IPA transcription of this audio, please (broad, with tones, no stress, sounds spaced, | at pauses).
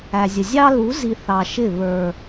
æ˨ zʲ ə˨ zʲ ɑ˦ l u˨˦ z i˨ θ ɑ˨ ʃ ɪ˦˨ β ə˞˨